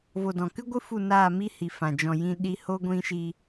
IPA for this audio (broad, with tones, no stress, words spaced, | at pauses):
vo˨dɔ̃˨kɨ˦ɡʷɨ˦ fu˦˨naː˦˨mi˦hi˨ fã˨ d͡ʒɔ̃˨jĩ˧ ɗi˦ ho˦ ɡʷĩ˦ʃi˦